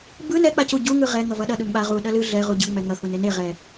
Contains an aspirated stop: no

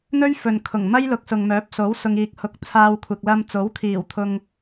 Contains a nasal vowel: no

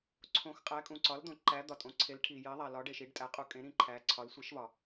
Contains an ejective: yes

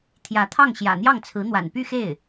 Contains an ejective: no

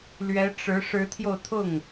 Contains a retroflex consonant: yes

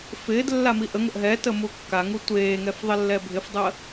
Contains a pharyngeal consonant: no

